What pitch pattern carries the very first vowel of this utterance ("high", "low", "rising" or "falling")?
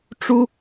high